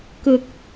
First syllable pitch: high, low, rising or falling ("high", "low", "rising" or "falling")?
low